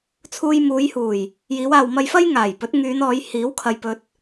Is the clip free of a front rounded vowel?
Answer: no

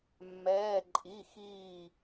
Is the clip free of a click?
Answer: no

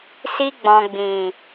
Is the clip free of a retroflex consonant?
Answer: yes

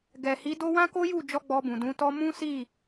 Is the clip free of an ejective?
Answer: yes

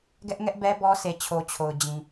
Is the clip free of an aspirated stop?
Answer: no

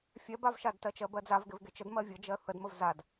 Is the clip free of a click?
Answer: yes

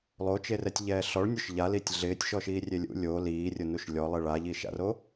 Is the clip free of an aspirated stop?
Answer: yes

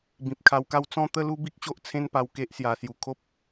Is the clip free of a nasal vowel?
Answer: no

